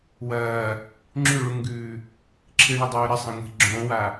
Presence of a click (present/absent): present